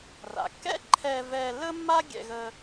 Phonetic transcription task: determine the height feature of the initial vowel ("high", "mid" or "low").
low